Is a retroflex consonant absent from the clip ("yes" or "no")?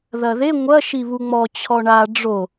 no